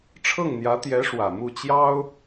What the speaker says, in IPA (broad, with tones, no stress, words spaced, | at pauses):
ʈ͡ʂʰɤ˥˩ŋn̪jä˧˥t̪jɛ˧˥ ʂwä˨˩mu˥˩t͡ɕjɑ˥ʊ̯